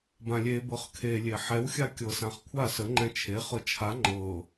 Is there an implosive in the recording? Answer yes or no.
no